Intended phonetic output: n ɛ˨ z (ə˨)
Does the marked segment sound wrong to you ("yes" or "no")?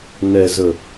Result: no